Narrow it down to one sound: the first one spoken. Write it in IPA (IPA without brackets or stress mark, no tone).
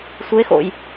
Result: sʷ